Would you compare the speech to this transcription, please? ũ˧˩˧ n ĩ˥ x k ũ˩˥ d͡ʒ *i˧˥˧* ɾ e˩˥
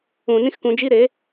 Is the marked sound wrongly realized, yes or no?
no